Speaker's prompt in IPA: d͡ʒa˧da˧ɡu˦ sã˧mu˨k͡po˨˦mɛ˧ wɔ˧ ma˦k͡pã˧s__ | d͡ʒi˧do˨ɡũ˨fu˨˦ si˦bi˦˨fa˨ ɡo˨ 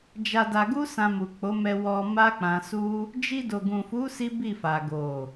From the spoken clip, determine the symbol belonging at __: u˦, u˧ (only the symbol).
u˦